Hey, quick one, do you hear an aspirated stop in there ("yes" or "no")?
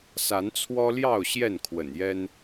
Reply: yes